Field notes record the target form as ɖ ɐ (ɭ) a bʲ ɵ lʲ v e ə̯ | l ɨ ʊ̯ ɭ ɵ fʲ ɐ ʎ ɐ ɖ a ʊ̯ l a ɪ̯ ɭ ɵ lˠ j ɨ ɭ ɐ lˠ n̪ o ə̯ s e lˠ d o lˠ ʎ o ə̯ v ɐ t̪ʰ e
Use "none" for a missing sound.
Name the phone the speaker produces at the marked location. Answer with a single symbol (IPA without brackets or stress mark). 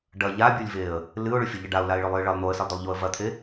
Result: ʎ